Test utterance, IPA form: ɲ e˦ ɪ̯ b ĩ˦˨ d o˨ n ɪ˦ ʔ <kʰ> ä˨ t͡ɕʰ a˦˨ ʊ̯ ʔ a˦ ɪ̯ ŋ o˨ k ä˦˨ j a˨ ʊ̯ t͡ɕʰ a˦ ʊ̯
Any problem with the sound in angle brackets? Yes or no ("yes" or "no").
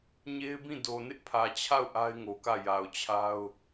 yes